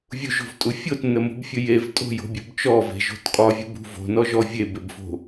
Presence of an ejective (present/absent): present